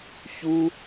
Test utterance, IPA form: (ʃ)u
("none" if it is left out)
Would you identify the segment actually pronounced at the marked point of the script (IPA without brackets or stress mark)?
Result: ç